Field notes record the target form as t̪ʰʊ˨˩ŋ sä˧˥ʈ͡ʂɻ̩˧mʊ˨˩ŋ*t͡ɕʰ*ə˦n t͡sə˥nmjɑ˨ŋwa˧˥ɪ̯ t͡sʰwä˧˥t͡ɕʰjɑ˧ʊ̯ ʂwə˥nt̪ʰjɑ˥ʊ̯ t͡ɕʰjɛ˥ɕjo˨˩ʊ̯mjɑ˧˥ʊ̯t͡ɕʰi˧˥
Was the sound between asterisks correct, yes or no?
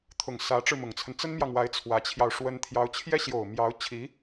no